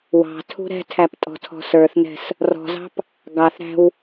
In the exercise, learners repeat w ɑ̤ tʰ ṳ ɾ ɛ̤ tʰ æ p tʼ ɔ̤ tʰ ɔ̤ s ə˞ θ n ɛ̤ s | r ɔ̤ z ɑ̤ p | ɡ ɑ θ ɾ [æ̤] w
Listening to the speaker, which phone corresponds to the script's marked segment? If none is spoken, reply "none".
æ̤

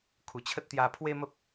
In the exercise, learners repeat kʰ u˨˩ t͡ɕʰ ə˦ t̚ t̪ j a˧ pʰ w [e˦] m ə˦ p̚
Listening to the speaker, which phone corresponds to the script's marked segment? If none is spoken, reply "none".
e˦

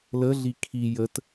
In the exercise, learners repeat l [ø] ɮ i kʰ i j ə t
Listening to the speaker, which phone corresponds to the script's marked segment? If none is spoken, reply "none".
ə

